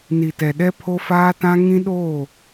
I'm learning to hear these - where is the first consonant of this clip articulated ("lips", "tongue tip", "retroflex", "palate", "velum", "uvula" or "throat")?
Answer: tongue tip